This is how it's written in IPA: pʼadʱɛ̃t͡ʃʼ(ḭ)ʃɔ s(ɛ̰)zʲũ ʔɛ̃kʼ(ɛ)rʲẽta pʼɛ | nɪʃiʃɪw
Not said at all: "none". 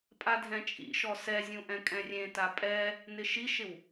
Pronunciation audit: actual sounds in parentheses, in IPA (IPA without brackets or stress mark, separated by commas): ḭ, ɛ, ɛ̃